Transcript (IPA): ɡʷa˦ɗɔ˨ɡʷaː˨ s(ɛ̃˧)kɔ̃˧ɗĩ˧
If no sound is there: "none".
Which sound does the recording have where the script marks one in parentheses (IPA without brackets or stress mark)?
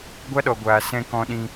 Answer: ɛ̃˧